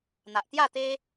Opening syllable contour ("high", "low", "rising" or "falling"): low